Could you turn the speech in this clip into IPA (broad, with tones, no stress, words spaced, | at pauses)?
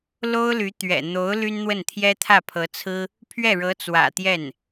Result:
lo˥ʊ̯ly˧˥ t̪ɥɛ̰˨˩ n̪o˧˥ʊ̯ ly˥nn̪wə˥˩nt̪ʰjɛ˥ t̪ʰä˥˩pʰɤ˧˥t͡sʰɹ̩˥ | pʰɥɛ˥˩ɻɤ˧˥t͡swä̰˨˩ t̪jɛ˥˩n